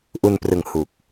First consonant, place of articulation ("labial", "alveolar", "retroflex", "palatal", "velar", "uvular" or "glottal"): glottal